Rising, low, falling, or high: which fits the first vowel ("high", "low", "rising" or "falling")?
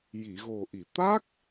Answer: low